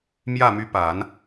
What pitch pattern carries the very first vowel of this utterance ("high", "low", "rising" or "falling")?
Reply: falling